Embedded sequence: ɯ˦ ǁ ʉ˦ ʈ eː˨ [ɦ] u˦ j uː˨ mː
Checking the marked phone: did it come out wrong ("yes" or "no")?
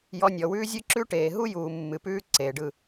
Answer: no